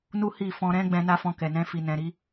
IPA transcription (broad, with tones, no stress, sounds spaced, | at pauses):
n u˦ h i˦˨ f ɔ̃˧ ɾ ɛ̃˦ ɡ͡b ɛ̃˧ n a˦ f ɔ̃˧ k ɛ˨ n ɛ̃˧ f i˨ n ɛ̃˨ ɾ i˧